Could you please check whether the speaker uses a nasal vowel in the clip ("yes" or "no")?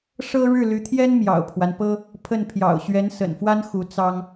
no